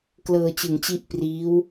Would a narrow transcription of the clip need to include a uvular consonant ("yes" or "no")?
no